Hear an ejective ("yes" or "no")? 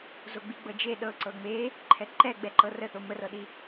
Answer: no